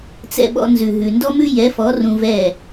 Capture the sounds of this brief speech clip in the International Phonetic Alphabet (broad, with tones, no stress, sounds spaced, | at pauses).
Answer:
t͡s ɛ̰˧ ɓ ɔ̰˧ n z ʉ˨ ɦ ʉ˨ n d ɔ˦ m ʉ˦ j ɛ˨˦ f ɔ˨˦ r ũ˧ v ɛ˦˨